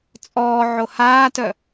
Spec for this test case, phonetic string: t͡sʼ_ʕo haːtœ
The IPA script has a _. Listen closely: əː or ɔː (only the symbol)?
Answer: ɔː